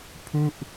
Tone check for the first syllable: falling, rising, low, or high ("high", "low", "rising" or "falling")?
falling